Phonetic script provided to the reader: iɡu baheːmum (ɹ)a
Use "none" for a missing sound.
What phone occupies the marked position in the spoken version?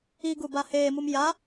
j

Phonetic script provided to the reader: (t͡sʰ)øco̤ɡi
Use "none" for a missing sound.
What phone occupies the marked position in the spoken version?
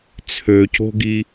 t͡sʰ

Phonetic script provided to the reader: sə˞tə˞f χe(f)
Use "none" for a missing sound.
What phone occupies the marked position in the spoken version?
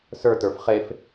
f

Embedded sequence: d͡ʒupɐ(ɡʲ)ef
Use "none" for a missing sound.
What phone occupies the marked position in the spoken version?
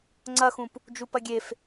ɡʲ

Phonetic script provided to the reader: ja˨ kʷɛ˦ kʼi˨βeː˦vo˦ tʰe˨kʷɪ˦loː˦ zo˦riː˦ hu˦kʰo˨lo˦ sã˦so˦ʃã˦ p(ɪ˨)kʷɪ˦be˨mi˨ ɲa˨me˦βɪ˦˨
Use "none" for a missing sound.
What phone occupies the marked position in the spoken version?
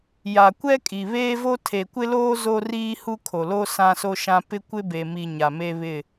ɪ˦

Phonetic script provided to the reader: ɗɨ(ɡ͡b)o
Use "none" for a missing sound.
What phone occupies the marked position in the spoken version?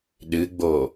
ɡ͡b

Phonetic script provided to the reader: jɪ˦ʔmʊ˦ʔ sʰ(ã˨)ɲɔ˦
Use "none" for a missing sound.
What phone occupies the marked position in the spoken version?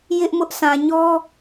ã˨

